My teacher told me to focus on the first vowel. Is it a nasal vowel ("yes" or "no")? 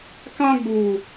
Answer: yes